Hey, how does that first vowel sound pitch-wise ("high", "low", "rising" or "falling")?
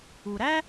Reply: low